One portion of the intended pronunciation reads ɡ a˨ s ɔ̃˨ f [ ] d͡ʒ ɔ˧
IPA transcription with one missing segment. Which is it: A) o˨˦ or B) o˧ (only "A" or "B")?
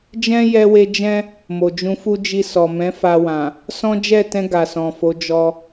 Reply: A